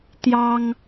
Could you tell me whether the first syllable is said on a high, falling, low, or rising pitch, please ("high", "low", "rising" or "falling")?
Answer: high